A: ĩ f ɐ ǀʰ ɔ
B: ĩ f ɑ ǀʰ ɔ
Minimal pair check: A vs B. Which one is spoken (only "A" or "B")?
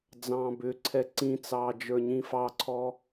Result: B